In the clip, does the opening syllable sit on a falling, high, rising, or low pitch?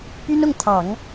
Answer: high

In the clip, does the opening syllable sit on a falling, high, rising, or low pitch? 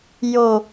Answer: low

